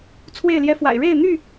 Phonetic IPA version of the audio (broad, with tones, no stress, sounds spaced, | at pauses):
t͡sʰ w e˥˨ ɪ̯ l j ɛ˦ f w a̰˨˩ ɪ̯ ɻ e˥˨ ɪ̯ n̪ y˥˨